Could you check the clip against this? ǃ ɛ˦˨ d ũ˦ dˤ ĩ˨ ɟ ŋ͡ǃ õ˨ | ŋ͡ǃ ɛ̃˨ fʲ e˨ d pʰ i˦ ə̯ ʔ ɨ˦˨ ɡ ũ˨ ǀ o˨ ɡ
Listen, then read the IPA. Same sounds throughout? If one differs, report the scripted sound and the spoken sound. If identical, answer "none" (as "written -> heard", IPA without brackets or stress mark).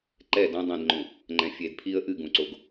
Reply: ɟ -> d